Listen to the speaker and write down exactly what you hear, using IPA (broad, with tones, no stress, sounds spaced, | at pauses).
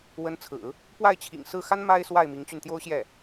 w ə˧˥ n t͡sʰ ɹ̩˨˩˦ | p w a˥˩ ɪ̯ t͡ɕʰ ḭ˨˩ ŋ s ɹ̩˥˩ x a˥ n m a˥ ɪ̯ s w a˥˩ ɪ̯ m i˧˥ ŋ t͡ɕ y˧ n t̪ j o˥ ʊ̯ ɕ j ɛ˥˩